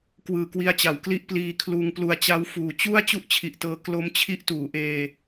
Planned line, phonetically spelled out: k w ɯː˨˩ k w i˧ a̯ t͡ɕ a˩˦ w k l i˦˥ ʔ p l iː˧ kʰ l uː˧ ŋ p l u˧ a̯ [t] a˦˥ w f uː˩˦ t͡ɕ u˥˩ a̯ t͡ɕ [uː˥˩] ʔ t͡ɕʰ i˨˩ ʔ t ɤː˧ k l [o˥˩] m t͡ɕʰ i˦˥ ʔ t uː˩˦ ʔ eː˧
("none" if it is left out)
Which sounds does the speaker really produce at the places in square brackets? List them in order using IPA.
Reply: t͡ɕ, u˥˩, o˦˥

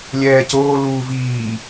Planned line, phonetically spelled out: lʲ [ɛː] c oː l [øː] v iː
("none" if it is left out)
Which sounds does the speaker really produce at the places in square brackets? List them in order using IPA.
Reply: ɛː, uː

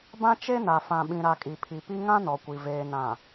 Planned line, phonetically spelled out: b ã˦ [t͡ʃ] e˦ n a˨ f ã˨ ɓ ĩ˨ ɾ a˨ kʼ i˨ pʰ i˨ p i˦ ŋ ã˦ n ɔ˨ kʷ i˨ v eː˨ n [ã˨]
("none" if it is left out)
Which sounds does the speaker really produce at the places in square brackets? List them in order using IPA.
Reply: t͡ʃ, ã˨

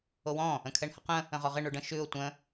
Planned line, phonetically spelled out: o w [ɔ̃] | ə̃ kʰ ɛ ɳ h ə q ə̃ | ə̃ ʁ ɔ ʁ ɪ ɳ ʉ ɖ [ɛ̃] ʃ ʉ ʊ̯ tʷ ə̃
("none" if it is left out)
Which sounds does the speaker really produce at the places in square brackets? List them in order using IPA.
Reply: ɔ̃, ə̃

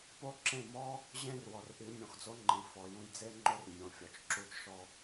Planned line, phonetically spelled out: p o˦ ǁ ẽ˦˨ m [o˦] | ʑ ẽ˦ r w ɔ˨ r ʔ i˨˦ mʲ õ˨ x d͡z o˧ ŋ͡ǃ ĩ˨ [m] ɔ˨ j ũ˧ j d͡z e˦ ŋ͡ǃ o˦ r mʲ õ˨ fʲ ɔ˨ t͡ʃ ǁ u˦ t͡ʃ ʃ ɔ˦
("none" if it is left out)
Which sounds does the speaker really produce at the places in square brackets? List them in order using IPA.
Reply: ɔ˦, f

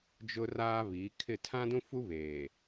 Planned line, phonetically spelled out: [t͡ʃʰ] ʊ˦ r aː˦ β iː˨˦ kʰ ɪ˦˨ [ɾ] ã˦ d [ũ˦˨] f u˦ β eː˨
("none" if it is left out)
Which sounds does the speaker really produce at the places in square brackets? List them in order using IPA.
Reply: d͡ʒ, tʰ, ũ˦

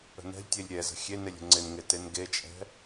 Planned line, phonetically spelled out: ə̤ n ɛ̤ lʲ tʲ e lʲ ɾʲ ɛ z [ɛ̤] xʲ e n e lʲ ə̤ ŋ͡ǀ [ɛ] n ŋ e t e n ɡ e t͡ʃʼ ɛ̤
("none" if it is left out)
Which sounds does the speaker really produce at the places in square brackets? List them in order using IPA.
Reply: ə̤, ɪ

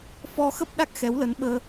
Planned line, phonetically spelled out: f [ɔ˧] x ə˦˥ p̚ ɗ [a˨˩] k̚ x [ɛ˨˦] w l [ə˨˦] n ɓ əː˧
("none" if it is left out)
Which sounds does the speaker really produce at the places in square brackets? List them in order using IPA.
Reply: ɔ˧, a˦˥, ɛ˨˦, ə˨˦

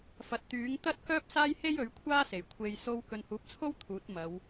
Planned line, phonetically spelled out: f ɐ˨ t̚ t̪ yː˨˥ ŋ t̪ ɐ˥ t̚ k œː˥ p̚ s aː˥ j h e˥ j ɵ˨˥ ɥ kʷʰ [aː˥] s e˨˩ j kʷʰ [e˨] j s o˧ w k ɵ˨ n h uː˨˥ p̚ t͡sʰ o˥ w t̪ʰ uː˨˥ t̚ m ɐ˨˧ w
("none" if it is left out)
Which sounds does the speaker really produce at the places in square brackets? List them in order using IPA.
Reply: aː˥, e˨

